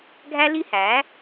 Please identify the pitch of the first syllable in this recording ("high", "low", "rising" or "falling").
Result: high